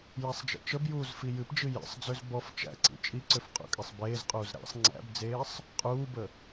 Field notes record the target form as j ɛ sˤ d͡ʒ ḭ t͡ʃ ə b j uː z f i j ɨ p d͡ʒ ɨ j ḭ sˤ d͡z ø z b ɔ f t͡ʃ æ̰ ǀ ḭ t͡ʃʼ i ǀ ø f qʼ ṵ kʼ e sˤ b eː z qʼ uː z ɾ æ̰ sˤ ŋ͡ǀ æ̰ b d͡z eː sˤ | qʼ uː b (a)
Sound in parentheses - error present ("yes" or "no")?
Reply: yes